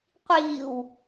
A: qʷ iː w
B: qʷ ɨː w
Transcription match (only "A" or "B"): A